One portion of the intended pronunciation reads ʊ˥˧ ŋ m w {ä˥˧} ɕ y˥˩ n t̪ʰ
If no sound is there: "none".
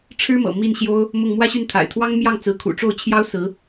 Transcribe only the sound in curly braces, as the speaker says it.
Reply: ä˥˧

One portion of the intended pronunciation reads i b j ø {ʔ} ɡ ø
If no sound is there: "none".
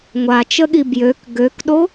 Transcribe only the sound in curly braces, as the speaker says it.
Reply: k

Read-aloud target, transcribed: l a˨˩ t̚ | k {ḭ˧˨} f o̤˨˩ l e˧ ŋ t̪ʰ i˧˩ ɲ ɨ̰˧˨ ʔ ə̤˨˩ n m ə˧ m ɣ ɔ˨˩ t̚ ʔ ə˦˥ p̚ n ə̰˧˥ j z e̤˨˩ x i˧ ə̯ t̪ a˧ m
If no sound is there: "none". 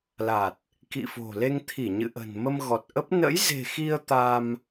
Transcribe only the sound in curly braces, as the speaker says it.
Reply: ḭ˧˨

